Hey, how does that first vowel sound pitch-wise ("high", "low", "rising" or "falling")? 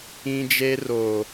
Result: high